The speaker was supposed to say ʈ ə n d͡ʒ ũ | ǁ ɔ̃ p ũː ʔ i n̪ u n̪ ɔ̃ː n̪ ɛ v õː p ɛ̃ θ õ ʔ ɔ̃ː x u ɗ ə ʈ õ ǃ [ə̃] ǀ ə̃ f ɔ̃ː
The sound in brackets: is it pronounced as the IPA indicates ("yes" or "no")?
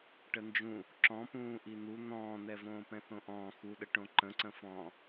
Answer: yes